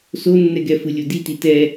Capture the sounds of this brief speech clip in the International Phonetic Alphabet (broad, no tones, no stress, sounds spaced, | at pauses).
s o nː ɛ ɡ ɛ f ɯ lʲ o d i t i t ɛ